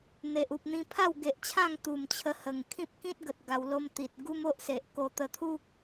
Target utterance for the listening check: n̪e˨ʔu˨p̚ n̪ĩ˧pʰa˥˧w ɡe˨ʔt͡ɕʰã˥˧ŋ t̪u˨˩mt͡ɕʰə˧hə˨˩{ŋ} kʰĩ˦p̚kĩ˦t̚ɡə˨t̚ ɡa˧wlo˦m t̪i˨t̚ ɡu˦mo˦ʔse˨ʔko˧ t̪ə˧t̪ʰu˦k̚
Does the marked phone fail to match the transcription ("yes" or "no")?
no